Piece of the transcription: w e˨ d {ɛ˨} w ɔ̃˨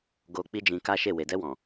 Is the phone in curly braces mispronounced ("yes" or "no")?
yes